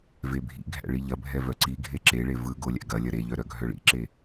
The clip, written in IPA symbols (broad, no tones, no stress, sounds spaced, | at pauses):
v e bʱ ḭ ɡʱ æ̰ ɭ i ʎ ɐ bʱ ɛ v œ ǀ i ɡʱ e ǁ e ɭ e v ɯ ɡ o lʲ æ̰ ɡ ɐ lʲ ɐ ɾ e ʎ œ ɾ œ ɡʱ œ ɭ ḭ ǁ e